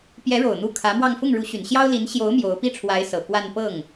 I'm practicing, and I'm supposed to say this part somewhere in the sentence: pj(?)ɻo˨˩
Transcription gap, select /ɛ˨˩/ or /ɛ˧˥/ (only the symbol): ɛ˧˥